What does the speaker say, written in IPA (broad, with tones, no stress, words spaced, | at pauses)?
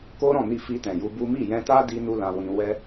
ko˦ɾɔ̃˦˨ni˧fi˧ tɛ̃˨ju˧bu˦ mi˦˨jɛ̃˧ta˦ di˦nu˦lã˧wĩ˧ wɛ˦